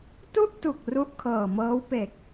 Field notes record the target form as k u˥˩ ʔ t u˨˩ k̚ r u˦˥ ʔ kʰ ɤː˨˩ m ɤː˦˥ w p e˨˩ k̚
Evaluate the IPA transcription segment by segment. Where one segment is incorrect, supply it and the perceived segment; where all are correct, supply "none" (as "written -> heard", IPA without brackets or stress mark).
k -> t